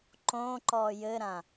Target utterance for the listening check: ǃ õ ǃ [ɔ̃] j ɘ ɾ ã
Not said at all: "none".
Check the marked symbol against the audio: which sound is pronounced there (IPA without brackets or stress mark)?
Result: ɔ